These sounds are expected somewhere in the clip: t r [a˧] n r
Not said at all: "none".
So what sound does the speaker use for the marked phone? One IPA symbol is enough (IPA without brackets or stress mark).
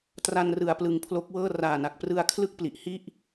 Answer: a˧